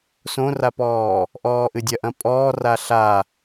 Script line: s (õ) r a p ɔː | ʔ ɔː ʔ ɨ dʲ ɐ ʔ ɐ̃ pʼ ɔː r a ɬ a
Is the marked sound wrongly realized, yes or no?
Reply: no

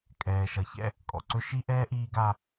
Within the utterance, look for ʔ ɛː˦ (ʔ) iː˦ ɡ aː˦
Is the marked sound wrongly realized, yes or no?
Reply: no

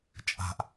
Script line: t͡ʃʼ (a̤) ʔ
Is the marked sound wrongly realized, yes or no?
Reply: no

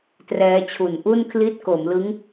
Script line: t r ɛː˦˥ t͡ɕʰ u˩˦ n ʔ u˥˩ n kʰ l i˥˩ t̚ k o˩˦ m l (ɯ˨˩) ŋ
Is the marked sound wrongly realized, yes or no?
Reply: yes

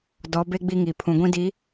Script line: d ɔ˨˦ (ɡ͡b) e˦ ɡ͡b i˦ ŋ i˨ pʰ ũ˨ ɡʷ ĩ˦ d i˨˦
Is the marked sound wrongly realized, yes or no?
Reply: yes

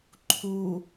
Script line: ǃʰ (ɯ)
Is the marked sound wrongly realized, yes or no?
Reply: yes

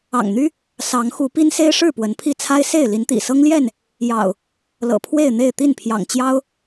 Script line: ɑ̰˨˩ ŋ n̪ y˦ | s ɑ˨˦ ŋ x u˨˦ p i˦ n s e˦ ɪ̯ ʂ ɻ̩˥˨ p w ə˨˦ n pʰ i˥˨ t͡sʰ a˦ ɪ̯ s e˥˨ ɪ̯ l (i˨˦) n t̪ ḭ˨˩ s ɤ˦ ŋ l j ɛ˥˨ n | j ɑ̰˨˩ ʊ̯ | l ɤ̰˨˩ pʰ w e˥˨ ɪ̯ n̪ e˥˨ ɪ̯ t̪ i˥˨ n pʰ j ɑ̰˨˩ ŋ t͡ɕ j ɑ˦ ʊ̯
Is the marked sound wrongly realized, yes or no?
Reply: no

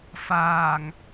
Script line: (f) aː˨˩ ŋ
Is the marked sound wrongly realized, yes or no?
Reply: no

